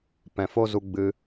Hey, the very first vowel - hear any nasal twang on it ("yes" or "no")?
yes